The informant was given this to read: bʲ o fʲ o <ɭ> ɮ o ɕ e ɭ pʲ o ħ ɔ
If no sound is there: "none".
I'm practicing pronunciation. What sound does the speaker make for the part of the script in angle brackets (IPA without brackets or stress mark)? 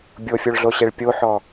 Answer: ɭ